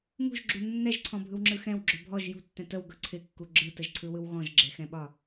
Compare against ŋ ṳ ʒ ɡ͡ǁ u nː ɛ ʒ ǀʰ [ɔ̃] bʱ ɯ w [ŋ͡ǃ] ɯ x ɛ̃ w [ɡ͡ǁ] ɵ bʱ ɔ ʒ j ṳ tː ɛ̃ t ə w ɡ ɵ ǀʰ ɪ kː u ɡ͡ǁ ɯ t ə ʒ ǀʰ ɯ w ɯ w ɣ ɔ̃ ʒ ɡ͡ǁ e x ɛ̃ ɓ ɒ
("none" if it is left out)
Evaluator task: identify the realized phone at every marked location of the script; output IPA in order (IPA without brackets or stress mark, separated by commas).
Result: ɔ̃, ŋ͡ǁ, ɡ͡ǁ